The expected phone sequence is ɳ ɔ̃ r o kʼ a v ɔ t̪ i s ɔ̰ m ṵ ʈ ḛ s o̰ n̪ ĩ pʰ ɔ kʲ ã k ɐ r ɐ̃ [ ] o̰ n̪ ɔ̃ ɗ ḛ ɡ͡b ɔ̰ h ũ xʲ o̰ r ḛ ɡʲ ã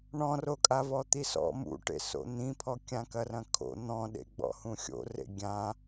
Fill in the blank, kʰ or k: kʰ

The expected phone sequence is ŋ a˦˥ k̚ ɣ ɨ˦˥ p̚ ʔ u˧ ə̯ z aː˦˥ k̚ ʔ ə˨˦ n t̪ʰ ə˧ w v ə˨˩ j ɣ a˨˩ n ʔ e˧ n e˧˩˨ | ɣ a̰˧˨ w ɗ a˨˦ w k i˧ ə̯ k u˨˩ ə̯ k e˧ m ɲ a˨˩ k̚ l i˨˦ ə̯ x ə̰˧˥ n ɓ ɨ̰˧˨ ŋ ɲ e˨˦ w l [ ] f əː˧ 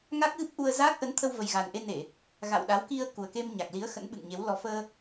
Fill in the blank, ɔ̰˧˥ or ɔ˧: ɔ˧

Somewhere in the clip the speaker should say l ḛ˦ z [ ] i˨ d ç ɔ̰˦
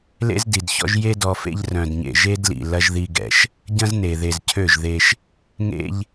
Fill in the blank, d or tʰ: d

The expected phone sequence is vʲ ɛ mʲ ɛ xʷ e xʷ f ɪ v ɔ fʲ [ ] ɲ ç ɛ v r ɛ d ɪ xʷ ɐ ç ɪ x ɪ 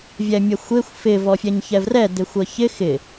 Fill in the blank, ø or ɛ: ɛ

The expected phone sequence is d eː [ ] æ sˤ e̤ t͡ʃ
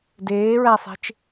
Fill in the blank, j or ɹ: ɹ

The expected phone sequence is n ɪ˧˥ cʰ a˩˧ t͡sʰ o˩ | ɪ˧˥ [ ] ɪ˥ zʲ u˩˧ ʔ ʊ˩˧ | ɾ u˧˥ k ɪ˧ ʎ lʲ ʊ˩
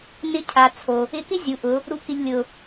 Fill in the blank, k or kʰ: k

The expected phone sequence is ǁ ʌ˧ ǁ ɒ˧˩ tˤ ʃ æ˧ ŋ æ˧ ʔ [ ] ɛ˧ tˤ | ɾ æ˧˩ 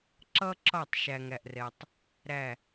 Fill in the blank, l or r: r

